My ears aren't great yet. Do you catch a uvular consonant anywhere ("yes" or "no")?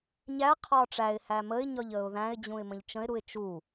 yes